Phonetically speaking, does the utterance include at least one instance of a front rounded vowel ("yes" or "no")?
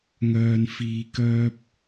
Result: yes